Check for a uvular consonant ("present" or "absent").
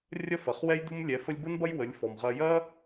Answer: present